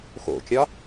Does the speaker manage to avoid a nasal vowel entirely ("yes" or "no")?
yes